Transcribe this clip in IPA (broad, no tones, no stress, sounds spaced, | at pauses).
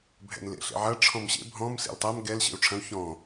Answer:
bʱ ɛ̰ n l ḛ ɬ ḛ ʕ ɐ ʈ͡ʂʰ ɔ̃ m ɕ ḛ bʱ ɔ̃ m s ḛ l tˤ ɐ m ɡ ɛ l ɕ ḛ u̯ ʈ͡ʂʰ ɐ̃ u̯ ç ɔ̃